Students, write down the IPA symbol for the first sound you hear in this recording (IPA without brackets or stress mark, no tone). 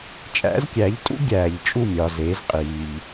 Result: t͡ʃʼ